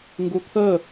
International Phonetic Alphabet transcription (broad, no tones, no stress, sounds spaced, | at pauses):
ŋ ɡ u t̪ʰ ə